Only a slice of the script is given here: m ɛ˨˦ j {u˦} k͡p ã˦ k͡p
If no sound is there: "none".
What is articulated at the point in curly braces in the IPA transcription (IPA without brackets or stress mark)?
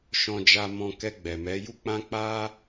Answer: u˦